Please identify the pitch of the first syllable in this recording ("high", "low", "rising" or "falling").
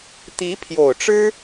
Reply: rising